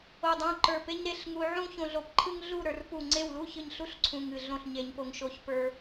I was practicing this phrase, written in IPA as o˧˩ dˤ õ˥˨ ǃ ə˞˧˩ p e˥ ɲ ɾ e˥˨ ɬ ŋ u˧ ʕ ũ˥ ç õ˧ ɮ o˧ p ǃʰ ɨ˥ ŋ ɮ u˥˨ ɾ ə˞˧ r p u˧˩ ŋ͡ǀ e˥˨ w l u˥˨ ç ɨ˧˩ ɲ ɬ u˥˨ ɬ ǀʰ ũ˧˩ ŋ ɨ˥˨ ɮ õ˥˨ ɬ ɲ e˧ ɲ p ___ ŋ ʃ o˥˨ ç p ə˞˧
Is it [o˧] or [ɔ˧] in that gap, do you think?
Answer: o˧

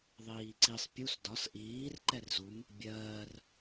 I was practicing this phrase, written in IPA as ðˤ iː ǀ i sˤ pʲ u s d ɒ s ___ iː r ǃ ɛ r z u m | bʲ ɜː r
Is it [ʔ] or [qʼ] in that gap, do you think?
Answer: ʔ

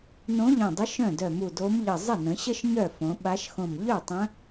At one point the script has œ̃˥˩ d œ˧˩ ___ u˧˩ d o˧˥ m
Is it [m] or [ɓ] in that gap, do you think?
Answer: m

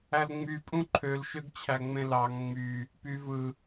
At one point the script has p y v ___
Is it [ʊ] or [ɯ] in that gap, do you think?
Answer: ɯ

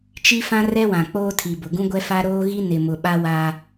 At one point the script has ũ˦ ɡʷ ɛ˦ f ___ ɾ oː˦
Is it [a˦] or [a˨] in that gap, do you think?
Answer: a˦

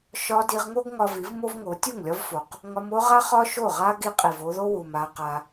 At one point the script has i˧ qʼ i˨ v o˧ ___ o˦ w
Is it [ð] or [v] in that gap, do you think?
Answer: ð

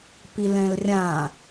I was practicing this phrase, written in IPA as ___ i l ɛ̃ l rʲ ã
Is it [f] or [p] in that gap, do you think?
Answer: p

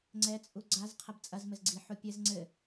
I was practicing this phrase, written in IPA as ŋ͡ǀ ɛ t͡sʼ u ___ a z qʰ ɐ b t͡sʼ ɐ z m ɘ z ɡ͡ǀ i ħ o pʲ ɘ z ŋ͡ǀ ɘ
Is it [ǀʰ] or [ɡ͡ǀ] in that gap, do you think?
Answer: ɡ͡ǀ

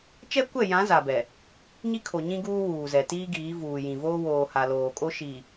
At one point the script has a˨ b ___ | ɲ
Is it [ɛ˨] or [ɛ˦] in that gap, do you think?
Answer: ɛ˨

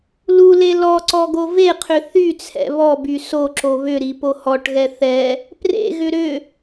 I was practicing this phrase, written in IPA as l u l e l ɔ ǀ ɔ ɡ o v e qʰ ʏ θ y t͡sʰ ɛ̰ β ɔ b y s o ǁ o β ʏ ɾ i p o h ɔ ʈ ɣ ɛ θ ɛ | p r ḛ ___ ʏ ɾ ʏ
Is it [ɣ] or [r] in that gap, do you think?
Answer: ɣ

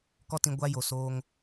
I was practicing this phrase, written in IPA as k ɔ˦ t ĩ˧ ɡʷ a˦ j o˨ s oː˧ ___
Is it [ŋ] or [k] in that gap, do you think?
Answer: ŋ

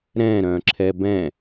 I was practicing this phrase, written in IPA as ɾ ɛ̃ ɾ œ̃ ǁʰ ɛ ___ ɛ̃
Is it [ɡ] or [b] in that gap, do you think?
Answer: b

